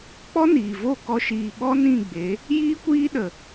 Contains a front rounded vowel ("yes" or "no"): no